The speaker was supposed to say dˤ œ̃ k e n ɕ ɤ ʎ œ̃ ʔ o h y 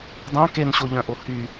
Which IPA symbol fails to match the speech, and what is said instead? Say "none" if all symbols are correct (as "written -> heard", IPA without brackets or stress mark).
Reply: ɤ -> o